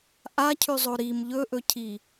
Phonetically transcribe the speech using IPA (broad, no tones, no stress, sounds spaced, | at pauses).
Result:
ʔ a cʰ ʉ zˤ o ɾ i m ʎ ɵ ʔ ɵ cʰ i